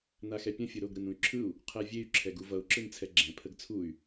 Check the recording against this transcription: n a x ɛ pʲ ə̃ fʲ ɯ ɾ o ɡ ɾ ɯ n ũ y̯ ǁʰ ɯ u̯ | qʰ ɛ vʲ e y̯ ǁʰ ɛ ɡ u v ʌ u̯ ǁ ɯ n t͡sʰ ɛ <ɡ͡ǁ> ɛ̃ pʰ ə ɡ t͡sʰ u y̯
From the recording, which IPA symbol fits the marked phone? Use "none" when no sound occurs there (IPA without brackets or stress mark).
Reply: ɡ͡ǁ